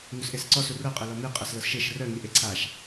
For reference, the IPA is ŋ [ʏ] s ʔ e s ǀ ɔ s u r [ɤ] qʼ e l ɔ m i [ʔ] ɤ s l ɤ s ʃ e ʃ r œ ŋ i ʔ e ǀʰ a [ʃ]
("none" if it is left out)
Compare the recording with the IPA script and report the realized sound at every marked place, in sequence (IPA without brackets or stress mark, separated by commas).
u, ɤ, qʼ, ʃ